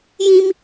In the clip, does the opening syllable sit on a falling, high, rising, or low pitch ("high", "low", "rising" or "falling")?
high